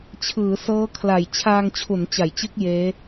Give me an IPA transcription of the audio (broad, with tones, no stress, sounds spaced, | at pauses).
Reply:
t͡ɕʰ ɯː˩˦ s ɤː˦˥ kʰ l a˨˩ j t͡ɕʰ aː˧ ŋ t͡ɕʰ u˩˦ n t͡ɕ a˩˦ j t͡ɕ ɯ˦˥ k̚ j eː˦˥